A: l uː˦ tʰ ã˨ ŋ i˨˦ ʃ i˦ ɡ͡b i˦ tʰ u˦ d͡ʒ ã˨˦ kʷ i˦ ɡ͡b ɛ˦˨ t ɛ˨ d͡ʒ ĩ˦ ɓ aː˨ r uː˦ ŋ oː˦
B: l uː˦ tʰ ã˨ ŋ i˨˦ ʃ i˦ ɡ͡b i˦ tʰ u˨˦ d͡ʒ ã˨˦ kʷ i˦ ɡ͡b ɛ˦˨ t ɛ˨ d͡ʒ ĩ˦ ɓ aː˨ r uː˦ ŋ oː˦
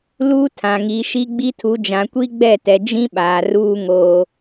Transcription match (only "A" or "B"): B